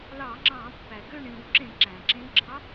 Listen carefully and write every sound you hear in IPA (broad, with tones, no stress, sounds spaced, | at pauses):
l ɑ˧˩˧ ŋ͡ǁ ɑ̃ː˧˩˧ pː æ˩ ɡ ø˥˨ ɳ ĩ˧˩˧ w ǁ ẽ˧˩˧ ǁ æ̃˩ ǁ ẽ˧˥ ɡ͡ǁ ɑ˧˥